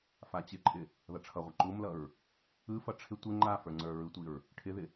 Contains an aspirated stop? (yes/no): yes